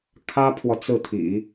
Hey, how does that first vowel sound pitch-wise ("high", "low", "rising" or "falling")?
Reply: high